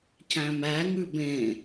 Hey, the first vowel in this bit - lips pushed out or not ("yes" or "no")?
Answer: no